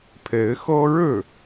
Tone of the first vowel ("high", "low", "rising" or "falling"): rising